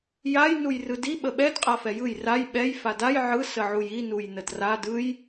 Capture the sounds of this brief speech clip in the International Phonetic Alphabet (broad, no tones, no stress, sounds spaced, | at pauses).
j a j n u j r ɯ d i ɓ ə ɓ ɛ d qʼ a f ɛ j ɯ j r a j ɓ ɛ j f a d a j ʕ ɯ s ə ʕ u j i n u j n ə d r a d ɯ j